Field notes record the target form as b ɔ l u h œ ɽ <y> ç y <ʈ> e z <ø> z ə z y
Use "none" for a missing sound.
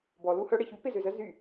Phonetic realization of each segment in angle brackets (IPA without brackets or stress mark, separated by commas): e, p, ø